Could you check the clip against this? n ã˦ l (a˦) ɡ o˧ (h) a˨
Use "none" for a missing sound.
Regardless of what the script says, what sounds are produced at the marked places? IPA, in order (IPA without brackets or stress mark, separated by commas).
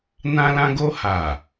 ã˦, h